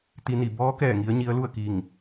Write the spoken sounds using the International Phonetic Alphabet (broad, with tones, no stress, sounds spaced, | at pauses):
t̪ i˧ n i˧˩ b ɔː˧˥ k ɛː˧˩ ŋ i˧˥ ə̯ ɲ i˧˥ ə̯ l u˥˨ ə̯ k iː˧˩ ŋ